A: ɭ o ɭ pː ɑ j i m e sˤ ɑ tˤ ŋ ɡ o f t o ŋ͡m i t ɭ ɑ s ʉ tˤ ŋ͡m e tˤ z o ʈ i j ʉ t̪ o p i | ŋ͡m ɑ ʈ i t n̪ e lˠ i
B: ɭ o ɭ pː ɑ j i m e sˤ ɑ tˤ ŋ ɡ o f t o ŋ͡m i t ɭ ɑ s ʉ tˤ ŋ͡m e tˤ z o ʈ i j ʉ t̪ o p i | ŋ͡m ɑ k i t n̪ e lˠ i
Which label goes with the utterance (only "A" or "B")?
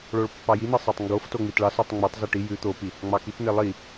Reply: B